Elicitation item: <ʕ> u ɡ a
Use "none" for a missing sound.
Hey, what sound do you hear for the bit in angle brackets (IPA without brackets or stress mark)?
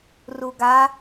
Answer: r